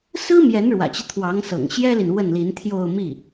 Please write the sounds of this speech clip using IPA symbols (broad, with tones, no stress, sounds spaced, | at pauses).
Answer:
s ɹ̩˥ m j ɛ˧˥ n ɻ w ä̰˨˩ t͡ɕ i˦ t̪ʰ w ɑ˧˥ ŋ s ɤ̰˨˩ ŋ ɕ j ɛ˥ l i˨ n w ə˥˩ n l i˧˥ n t̪ʰ j o˥˧ ʊ̯ m i˥˩